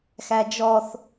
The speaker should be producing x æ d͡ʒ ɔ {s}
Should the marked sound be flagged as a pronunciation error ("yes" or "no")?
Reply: yes